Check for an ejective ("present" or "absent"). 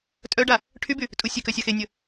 present